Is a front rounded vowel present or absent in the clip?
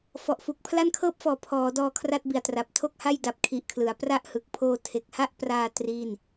absent